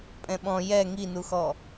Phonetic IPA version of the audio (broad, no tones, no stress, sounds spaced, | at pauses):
pʼ ɛ̃ ɓ ɔ̃ j ɛ ŋ i n u x ɔ